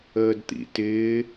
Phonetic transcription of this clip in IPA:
əːdt̪ḭtɪː

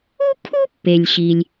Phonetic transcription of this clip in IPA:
u˥kʰu˥pːe˩lʲ ɕi˩lʲ

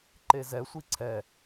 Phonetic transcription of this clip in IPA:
ǃezɛsʷi ǀʰɛ

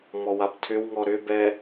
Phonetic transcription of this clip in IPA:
mɔwabtʰʏwŋɔ ɾʏbɛ

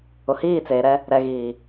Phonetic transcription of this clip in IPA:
ʊ˨hiː˦˨t͡seː˨ɾɛ˦ | ɾɛ˨ɣiː˨

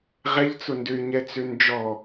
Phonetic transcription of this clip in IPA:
ʁɛʎt͡sʊndøy̯ ɲɛt͡sønd͡ʒɔ

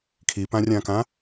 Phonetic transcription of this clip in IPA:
kʰipãrʲãkã

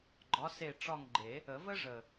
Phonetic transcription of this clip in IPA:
ɡ͡ǃɒ˨˥se˦˨ ʈ͡ʂɒ˦˨ŋɡ͡ǃe˨˩˦ | ə˨˩˦və˥ʐə˨˩

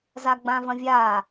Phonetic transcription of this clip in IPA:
zaɡ͡bãvɐ̃vʲa

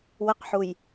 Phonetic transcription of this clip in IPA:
wəqħuj

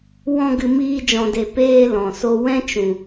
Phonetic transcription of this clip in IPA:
wɔ̃˧ɡɨ˨miː˧ d͡ʒɔ̃˨de˨ peː˧ lɔ̃˨so˦ wɛ̃˦t͡ʃũ˨

